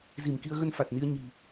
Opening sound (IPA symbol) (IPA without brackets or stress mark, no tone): z